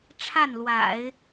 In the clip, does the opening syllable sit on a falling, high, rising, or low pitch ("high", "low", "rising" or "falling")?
falling